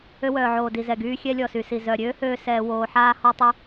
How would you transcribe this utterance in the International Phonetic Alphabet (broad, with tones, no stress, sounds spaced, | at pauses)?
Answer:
ø˧ w œː˨ ʕ oː˨ d i˨ z ɛ˨ ɡ yː˧ xʲ ɛ˧ lʲ ɔ˨ s y˨ s i˨ z œ˨ ɾʲ øː˦ h øː˧ s ɛː˧ w oː˧ ħ aː˦ h ɔ˧ tˤ i˧